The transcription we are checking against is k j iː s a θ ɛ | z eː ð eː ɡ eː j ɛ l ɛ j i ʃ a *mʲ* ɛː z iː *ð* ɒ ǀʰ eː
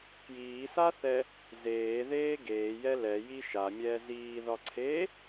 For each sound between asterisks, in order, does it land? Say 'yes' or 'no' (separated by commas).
yes, yes